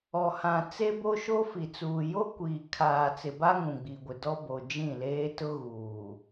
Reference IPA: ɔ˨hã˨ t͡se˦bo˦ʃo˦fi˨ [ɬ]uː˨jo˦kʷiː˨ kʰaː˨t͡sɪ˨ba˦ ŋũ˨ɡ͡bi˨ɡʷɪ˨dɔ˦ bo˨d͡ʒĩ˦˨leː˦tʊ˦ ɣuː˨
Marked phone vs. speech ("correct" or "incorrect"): incorrect